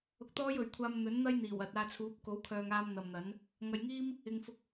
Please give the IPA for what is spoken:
ʊ˧ k̚ t̪ ɔː˥ j ɵ˨ ɥ kʷʰ aː˧ m n̪ ɵ˨˥ n n̪ ɐ˥ j n̪ iː˨˩ w ɐ˨ t̚ aː˧ t͡sʰ uː˨˥ p̚ k o˨˥ w kʰ œː˨ ŋ aː˧ m n̪ ɐ˨ m n̪ ɐ˨˥ n | ŋ ɐ˨ j ŋ iː˥ m | ɪ˨ ŋ f ʊ˧ k̚

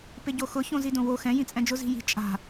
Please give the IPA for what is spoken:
p ɪ ɟ o x ʊ ç õ z i d õ w o x ɛ̃ j ĩ t͡sʼ ɛ̃ d͡ʒ ʊ z i̤ j i̤ t͡ʃʼ a̤

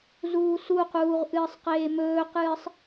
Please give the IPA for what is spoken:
z uː s u q uː ʁ ʔ ɨː sˤ q eː m ɵː q ɨː sˤ

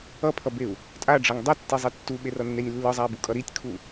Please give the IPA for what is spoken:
ʌ pʰ ʌ b e u̯ | tʼ a ɖ͡ʐ ʌ ŋ dˤ ʌ tː i zˤ i tː u ɓ e r ʌ nː e nʲ lː ɯ zˤ a i̯ b u kʼ ʌ ɾ i tʲ kʰ u

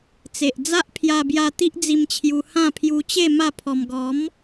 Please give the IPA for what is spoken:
t͡s e˨ ʔ d͡z a˦ ʔ pʰ j a˧ b j a˧ t̪ i˦ ʔ d͡z i˧ m t͡ɕʰ j u˧ h ã˥˧ pʰ j u˧ t͡ɕ e˥˧ m a˥˧ pʰ ɔ˧ m ɡ ɔ˨˦ m

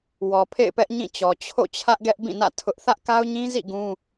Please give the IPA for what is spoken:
w ɔ˨ pʰ ḛ˦˨ ɪ̯ p ɛ˦ ʔ ɲ ĩ˦˨ t͡ɕ ɔ˨ t͡ɕʰ o̰˦˨ t͡ɕʰ ä˦ ʔ ɡ ɛ˦ ʔ b ĩ˦˨ n ä̰˦˨ tʰ ʊ˦ ʔ θ ä˦ ʔ k a˦ ʊ̯ ɲ ĩ˦ z ḭ˦˨ ɡ ũ˦

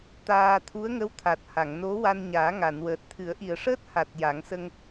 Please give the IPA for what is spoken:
t̪ aː˧ t̪ʰ u˧˥ ə̯ ŋ ə˧˥ w t̪ʰ a˨˩ t̚ h a˨˩˨ ŋ n o˧˥ w a˧ n ɲ aː˨˩˦ ŋ a˨˩˨ n w əː˨˩ t̚ t̪ʰ ɨ˨˩˦ ə̯ ʔ i˨˩ ə̯ ʂ əː˦˥ t̚ h a˨˩ t̚ j a˨˩˦ ŋ s ə˧ ŋ

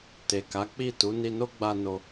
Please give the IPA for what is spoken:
t e˨ k a˨˦ k͡p i˦˨ t u˨˦ n i˧ n o˦ ɡ͡b a˧ n o˨

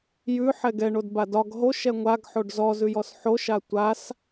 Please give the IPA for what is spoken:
j ʉ ħ ɛ ɡ ɛ ɳ o d b a d ɒ ɡ ɦ o ʃ ɛ ŋʷ a ɡ ħ o ɖ z ɔ z ʉ j ɔ s ħ o ʃ a tʷ a s

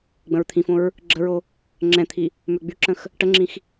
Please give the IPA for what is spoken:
ɡ͡b ə̃ ɹ t̪ʰ ĩ f õ ɹ | ɡ͡ǁ ə ɹ o | ŋ͡ǁ ɛ̃ t̪ʰ i | m ø ɡ͡b y ǁ ə̃ x | ʈ ə ŋ͡ǁ ĩ x

